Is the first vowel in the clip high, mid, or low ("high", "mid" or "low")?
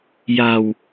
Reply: low